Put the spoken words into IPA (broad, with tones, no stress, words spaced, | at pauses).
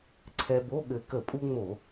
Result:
ǀʰɛ˧bo˧˥˧ɠɘ˧˩ kə˧˩˧pʼu˧ ŋ͡mo˧˩˧